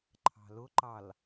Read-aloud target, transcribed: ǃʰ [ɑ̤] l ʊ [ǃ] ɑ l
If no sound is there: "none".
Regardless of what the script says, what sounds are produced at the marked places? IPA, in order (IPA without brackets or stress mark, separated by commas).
ɑ̤, ǃ